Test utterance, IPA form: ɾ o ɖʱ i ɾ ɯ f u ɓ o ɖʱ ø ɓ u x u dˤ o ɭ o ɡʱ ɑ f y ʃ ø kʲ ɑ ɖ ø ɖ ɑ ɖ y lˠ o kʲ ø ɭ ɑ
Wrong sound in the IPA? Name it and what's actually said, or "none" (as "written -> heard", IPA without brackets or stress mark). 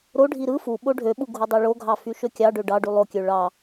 x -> ɡʱ